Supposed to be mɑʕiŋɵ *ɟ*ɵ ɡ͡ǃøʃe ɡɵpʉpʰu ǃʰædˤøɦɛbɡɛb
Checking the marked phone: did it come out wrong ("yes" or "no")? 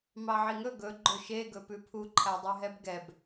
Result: yes